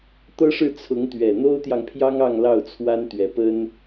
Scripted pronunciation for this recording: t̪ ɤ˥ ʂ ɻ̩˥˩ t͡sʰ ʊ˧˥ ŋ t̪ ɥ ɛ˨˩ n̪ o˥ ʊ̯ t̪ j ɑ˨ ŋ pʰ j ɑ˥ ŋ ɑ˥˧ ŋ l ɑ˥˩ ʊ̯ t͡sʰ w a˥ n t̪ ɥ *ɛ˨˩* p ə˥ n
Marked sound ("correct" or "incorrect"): correct